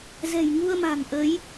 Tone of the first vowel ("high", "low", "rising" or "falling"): low